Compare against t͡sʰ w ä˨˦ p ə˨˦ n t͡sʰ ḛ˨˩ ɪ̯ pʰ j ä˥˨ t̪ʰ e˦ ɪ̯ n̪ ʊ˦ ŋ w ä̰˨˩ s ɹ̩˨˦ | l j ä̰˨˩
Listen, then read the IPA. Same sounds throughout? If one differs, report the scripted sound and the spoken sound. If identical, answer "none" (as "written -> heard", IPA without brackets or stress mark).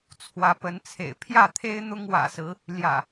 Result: none